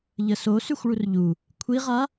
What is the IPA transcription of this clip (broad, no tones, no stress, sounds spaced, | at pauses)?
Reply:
ʎ ə s o s y xʷ ɭ u r ʎ u | kʷʰ i ʁ a